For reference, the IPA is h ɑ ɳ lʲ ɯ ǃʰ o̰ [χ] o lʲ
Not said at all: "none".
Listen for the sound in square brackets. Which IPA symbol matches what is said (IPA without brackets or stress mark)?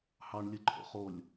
χ